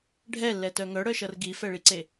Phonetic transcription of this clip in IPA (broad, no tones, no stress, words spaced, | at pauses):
ɖʱɛlːɛtœ ŋœɽœʃʌr ɡifɛɭiǀe